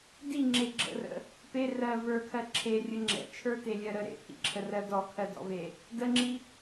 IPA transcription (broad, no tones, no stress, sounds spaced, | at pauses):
d i ŋ͡ǁ e ɡ͡ǁ ə̰ r ə̰ | p e r ɜ v ə˞ kʰ ɜ ǁʰ e rʲ ə ŋ͡ǁ ɛ̰ t͡ʃʰ ə˞ t e lʲ ɜ ɾ ə ɾ ḛ pʰ ḭ ǁʰ ə r ɜ d ɔ kʰ ɜ d ɔ̰ v e | d ə ŋ͡ǁ i